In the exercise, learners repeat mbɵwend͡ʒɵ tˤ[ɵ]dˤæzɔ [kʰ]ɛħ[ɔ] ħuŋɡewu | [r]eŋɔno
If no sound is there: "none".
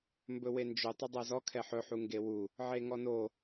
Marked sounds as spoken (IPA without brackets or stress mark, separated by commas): ɵ, kʰ, ɵ, ʕ